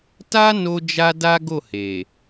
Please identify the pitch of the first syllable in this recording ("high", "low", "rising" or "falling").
high